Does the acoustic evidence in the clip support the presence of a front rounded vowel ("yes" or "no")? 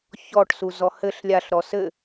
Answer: no